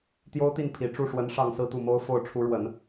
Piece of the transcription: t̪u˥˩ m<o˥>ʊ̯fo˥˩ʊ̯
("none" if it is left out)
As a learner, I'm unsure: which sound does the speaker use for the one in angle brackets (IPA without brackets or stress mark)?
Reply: o˥